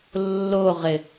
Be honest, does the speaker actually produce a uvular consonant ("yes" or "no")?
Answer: yes